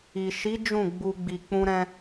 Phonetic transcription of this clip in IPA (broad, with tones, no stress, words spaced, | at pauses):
i˨ ʃi˨˦ d͡ʒũ˦˨ɡ͡bu˧ ɡ͡bi˨k͡pũ˧ɾɛ̃˧